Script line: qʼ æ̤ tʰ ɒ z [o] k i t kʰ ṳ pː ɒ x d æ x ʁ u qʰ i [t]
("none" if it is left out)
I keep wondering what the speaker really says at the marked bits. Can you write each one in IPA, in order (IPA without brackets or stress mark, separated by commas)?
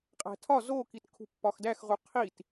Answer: o, t